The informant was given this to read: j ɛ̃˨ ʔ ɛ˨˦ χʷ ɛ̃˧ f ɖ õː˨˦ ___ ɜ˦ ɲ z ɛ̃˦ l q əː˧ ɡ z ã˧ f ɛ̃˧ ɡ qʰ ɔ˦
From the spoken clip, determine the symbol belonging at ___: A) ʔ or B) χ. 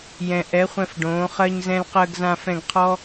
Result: B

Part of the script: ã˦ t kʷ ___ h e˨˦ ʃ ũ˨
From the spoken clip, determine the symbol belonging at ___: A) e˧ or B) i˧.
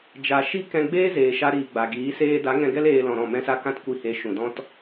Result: B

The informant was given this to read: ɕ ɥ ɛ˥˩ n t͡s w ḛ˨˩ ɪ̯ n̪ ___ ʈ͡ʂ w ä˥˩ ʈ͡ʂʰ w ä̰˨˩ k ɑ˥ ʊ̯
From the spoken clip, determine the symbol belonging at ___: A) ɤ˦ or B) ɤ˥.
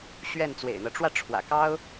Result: A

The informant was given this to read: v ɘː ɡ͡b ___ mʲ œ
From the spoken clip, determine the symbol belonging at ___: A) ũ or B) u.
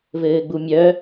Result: B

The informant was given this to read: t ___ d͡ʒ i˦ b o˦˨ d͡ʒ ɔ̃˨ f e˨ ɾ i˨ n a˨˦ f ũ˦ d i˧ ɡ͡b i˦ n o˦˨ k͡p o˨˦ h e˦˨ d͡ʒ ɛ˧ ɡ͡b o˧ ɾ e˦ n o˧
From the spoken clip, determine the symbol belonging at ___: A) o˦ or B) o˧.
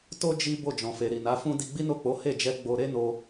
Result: A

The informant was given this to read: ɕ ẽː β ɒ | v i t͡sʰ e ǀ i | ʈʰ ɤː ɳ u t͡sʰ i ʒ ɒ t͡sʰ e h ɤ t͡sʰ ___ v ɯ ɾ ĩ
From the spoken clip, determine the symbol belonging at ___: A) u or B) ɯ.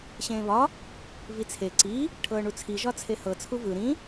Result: A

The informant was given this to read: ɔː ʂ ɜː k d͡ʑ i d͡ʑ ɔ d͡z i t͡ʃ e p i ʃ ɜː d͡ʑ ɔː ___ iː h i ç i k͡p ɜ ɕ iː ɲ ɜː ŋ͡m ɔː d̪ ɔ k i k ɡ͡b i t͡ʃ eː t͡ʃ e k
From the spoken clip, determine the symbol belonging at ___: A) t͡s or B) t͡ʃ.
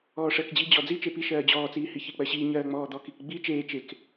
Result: A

